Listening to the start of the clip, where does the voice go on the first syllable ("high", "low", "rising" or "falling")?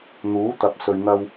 rising